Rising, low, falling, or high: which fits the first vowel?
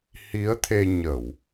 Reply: rising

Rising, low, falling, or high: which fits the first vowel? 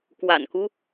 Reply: low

